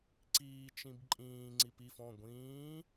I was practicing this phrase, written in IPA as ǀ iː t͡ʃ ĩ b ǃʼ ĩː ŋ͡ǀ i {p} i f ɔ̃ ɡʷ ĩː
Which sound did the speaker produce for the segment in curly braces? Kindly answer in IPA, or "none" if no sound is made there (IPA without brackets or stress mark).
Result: p